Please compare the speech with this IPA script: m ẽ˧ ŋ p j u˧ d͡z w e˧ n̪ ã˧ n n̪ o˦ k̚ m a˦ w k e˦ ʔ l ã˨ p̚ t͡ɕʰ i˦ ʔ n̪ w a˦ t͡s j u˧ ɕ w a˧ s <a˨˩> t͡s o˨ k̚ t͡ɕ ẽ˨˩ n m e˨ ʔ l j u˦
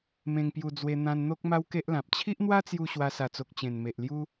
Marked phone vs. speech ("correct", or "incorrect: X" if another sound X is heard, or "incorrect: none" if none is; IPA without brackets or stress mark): correct